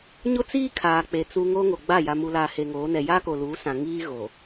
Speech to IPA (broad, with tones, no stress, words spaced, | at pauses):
ɲʊ˦t͡siː˦ kʰaː˨k͡pe˨ t͡su˨ ŋoː˦ŋo˨ɡ͡ba˦˨ ja˨mu˨laː˨ he˨ŋoː˨˦nɛ˨ jaː˦ko˨luː˨˦ sã˨ ŋiː˦ ɣo˨